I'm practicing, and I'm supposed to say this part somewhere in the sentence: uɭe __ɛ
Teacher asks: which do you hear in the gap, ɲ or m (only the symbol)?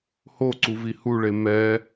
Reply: m